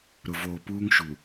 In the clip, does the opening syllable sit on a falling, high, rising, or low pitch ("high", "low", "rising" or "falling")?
low